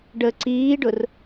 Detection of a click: present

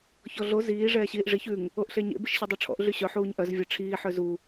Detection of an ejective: absent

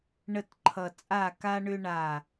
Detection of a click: present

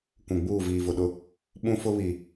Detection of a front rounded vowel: absent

